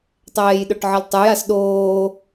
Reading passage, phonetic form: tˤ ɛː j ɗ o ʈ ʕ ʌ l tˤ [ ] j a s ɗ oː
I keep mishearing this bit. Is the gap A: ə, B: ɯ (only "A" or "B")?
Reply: B